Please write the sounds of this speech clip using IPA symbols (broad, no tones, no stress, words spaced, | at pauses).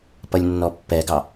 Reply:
pʌlʲnːɔpːɛɡɑ